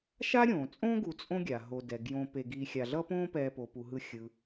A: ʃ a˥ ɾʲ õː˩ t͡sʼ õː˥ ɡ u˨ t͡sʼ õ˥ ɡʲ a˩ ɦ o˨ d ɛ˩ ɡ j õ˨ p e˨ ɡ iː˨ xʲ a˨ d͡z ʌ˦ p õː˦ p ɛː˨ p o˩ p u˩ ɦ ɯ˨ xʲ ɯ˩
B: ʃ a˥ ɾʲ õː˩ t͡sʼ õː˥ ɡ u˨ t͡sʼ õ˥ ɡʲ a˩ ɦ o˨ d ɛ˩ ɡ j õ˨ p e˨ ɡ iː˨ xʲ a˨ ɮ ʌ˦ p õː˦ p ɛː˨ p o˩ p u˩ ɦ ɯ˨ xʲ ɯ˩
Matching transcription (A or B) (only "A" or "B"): B